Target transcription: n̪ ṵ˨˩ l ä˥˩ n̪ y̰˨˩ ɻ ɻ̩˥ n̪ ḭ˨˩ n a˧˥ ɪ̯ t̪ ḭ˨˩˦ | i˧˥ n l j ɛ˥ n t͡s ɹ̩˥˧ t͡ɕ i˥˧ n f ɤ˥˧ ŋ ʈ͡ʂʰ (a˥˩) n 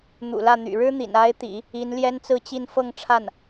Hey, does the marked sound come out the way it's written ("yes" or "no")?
yes